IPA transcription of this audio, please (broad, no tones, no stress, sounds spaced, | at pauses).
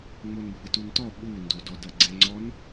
ŋ͡m o n bʱ ɨ t u n t ɔ ɓ u n d o d ɔ d ɐ ɡ͡ǀ ɛ ŋ͡ǀ ɔ n